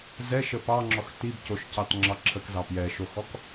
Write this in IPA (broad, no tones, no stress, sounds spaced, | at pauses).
z ɛ ʃ ə p ɑ ŋ͡ǁ ɔ x t i b c o ʃ c ɑ t ŋ͡ǁ ɑ ǁʰ ə k z ɑ p j ɛ ʃ o x ɔ k